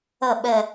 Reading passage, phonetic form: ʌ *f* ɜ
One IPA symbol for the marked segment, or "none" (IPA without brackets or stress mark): ɓ